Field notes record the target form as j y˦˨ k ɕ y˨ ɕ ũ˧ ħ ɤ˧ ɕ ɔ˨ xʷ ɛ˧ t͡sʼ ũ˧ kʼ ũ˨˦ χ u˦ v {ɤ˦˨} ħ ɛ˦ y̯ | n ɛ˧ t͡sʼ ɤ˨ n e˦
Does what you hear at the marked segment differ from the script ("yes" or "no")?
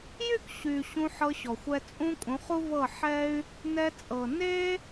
no